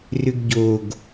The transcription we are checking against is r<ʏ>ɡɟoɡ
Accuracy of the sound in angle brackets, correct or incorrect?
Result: correct